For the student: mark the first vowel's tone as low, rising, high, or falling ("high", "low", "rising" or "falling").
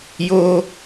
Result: high